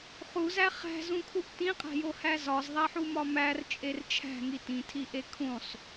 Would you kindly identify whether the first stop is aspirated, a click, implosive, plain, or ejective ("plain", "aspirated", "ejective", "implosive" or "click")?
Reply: aspirated